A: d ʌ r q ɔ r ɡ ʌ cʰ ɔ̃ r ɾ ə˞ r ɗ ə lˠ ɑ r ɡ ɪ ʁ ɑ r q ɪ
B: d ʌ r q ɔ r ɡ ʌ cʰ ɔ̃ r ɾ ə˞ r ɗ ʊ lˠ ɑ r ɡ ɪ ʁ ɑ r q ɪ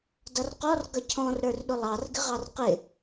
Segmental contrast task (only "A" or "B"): B